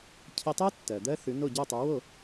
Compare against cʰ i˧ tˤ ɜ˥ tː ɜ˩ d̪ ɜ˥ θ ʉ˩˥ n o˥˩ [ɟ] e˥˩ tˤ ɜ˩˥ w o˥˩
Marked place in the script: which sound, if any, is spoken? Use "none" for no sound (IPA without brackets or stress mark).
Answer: ɟ